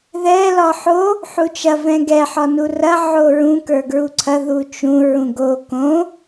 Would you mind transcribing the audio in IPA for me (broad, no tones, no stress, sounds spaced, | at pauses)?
ð ɛ l ɒ ħ o | ħ u t͡ʃ ɐ v ɛ̃ ɡ ɛ ħ ɒ n u r ɐ ʕ o ɹ ũ k ə˞ ɡ ɹ u ǀʰ ɐ ð u t͡ʃ ũ ɹ ũ ɡ o k õ